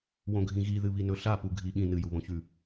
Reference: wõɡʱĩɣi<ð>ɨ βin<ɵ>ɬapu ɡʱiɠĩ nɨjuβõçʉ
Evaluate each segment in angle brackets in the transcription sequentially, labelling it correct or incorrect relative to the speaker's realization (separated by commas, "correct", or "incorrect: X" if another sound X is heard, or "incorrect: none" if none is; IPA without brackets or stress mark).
correct, correct